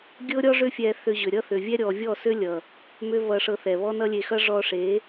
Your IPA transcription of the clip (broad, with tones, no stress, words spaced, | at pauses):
ɡʲɤ˦ɾʲɔ˦ ʐʏ˧ fʲɛ˧θʏ˧ʑʏ˨ ɾʲʌ˦θʏ˨vʲɛ˦ ɾʲɔ˨vʲɔ˦˨sʏ˦ lʲʌ˨ | mʏ˦vʌ˧ʂɤ˧ θɛ˨βɔ˦ nʌ˦lʲe˧xʌ˦ ʐɔ˧ʂe˨˦